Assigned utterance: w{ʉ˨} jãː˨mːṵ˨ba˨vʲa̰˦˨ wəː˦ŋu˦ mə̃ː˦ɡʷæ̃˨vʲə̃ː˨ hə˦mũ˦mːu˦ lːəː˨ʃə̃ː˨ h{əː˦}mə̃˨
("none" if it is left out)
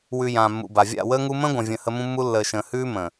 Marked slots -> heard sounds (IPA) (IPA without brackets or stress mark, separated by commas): ʉ˨, ʉː˦